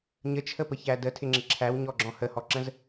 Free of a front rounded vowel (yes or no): yes